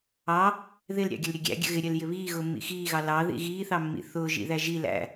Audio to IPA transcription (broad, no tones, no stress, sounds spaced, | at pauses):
ɑ | ð ɪ l ɾʲ ɑ̰ ɡʲ ə l ɾʲ ə ɡʲ æ̰ ɡʲ ə̰ ɣ ɪ ɾʲ ɜ l j ɪ β iː ɣ ʊː mː ḭ x iː ɣ ɑ l ɑ ð ḭ ɣ iː θ ɑ mː ḭ θ ʊː ʒ ḭ ð æ ʒ i l æ̰